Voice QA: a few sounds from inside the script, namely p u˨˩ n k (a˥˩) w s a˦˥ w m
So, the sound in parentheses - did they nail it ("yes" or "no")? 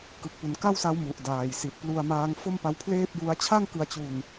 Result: yes